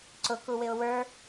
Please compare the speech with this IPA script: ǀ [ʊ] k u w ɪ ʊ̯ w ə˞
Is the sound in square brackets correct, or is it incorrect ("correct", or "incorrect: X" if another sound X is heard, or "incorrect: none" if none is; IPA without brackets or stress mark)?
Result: correct